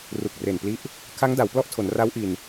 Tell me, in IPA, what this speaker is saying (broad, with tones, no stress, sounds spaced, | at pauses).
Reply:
r u˨˩ k̚ r e˨˩ n p l i˦˥ ʔ | kʰ a˦˥ ŋ d a˩˦ w p l ɔ˥˩ ʔ tʰ o˩˦ n r a˦˥ w ʔ i˧ n